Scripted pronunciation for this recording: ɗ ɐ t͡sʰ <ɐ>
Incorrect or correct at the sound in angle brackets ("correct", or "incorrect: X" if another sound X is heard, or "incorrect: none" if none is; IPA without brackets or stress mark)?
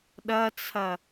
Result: correct